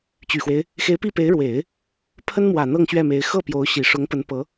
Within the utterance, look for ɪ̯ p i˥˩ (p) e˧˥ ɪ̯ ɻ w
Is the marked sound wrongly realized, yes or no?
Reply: no